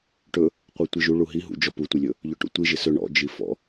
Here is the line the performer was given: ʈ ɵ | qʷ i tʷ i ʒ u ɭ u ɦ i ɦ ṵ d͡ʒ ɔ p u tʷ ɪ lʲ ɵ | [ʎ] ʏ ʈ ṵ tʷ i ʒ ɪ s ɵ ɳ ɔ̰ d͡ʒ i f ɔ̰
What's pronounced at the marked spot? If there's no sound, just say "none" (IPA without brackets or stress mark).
ʎ